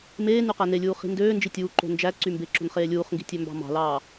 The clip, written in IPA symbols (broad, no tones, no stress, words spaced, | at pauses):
meː nyqænelʲuː χi̤ndøːnd͡ʒi tʲuːǃo̤ nd͡ʒæ ǀymbeǁo̤n χeːlʲuːχŋɡi̤ tʲømbɑ̤mɑ̤lɑː